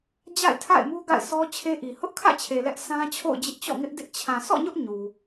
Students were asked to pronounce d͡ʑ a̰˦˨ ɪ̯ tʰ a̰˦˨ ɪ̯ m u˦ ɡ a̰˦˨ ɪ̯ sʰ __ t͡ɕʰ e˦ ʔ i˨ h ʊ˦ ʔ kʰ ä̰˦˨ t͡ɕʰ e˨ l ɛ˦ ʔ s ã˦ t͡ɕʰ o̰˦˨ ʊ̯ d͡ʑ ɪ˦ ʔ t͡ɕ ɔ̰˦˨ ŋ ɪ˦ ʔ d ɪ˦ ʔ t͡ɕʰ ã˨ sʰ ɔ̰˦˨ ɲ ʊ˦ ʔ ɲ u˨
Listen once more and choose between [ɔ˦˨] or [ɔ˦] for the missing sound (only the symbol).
ɔ˦